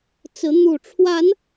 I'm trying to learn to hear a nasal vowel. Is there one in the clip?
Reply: no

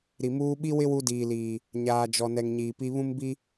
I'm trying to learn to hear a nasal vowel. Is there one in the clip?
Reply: yes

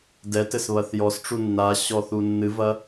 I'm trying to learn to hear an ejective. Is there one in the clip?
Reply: no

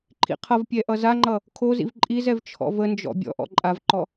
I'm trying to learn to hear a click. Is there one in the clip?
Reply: yes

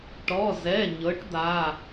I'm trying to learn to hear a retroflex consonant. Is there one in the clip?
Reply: yes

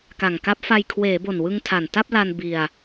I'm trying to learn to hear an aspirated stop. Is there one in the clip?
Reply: yes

